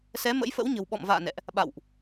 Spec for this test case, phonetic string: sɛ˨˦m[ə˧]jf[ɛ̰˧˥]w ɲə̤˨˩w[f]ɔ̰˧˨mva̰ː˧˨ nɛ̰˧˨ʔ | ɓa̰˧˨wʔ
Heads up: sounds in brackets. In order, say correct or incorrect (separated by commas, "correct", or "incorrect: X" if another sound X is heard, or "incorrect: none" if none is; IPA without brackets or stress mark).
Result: incorrect: ə̰˧˥, incorrect: ə̰˧˥, incorrect: ɓ